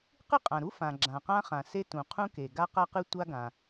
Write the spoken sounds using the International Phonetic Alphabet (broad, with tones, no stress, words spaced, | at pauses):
qɨ˥qʼã˩ɾu˥ fã˩ ɡ͡ǁã˩qã˥χã˩ se˥ tũ˩qʰũ˥ke˩ ɡa˥qa˥qɨ˥ tʷa˥ɡã˩